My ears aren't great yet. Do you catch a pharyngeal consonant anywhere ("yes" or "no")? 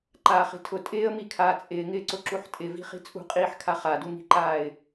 yes